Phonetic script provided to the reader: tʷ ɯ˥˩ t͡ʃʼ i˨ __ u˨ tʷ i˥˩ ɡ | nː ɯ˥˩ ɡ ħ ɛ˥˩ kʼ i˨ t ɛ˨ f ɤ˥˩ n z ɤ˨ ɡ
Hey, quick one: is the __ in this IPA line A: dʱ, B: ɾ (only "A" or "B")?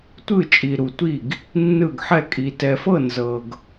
B